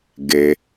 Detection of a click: absent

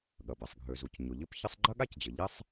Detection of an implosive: present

